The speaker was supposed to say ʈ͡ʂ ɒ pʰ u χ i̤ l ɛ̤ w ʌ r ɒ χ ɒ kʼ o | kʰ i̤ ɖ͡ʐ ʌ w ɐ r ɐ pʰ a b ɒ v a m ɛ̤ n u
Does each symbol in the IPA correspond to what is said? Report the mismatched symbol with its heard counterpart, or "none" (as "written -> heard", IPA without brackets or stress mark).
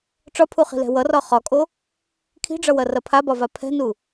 m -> pʰ